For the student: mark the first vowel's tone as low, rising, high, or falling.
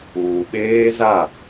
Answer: low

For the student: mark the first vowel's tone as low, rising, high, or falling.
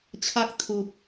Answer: high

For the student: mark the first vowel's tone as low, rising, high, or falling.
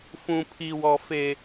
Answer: high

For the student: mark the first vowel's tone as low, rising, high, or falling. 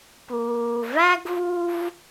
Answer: low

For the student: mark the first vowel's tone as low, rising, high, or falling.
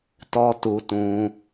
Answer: high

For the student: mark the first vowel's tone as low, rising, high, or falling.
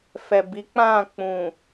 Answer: low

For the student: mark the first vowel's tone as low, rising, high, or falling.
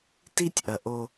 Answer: high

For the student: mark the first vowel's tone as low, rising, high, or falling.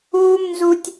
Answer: high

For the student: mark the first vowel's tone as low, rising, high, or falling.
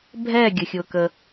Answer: falling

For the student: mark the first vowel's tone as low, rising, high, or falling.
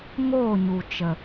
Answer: falling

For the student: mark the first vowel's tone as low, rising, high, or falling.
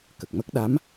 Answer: low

